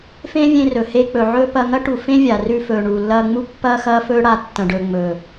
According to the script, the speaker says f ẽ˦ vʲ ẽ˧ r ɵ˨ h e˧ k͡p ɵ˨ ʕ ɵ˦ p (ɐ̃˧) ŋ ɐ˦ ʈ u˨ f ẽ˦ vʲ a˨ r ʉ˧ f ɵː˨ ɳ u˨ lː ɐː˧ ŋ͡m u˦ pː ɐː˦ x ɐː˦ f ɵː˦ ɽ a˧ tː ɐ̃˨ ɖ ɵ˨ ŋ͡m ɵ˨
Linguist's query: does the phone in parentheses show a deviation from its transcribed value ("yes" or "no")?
yes